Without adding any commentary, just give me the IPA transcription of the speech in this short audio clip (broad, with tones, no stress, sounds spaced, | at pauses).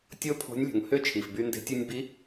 tʲ o˧ pʰ o̤˧˥ nʲ lʲ o̤˩ ŋ h ø˥ t͡ʃʰ i˩ f b y˧ n d e̤˧˥ tʲ ɯ˧ nʲ b i˧˥